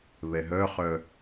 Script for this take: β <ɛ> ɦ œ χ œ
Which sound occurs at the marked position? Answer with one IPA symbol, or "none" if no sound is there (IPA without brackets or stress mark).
ɛ